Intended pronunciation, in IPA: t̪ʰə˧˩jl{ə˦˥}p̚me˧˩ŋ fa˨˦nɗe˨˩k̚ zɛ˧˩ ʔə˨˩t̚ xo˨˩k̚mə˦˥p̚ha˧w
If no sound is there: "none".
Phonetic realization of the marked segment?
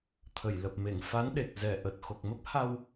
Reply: ə˨˩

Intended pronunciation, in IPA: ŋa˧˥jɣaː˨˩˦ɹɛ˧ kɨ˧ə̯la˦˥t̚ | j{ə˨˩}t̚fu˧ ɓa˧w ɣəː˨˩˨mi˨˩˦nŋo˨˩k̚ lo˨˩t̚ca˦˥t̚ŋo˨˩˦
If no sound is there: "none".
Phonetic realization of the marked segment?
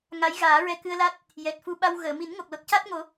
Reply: ɛ˨˩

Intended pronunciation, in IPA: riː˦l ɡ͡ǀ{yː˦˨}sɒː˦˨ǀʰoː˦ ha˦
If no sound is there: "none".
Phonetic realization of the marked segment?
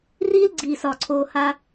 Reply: iː˦˨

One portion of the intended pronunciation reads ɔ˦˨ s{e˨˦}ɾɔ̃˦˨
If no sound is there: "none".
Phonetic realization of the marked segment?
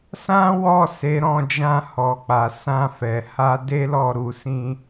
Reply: e˨˦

